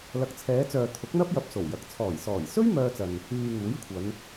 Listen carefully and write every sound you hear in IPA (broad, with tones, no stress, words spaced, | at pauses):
lɐ˨˥k̚t͡sʰɛː˨˧t͡sœː˨ t̪ʰʊ˨˥k̚n̪ɐ˥p̚jɐ˨p̚ so˨˩wjɐ˨k̚ t͡sʰɔː˨˩jsɔː˨˩jsɵ˥ɥ mœː˧t͡sɐ˨n | yː˨ ŋuː˨˥jkʷʰɐ˨˧n